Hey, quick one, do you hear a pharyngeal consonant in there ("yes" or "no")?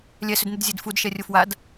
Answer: no